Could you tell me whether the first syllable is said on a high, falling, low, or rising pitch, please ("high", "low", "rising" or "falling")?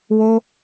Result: high